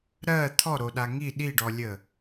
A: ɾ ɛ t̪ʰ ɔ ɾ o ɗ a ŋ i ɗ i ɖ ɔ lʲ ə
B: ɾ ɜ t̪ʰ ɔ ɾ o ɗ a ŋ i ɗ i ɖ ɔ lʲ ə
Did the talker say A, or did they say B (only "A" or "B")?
B